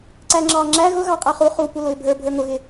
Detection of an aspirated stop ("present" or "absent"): absent